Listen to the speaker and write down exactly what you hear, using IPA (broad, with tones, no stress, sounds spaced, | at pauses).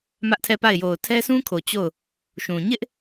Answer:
m ä˦ ʔ tʰ ɛ˦˨ p a˦˨ ɪ̯ j o˨ ʊ̯ tʰ ɛ˦ s ũ˦ kʰ o˨ t͡ɕ o˦˨ ʊ̯ | ʃ ũ˨ ɲ ɪ˦ ʔ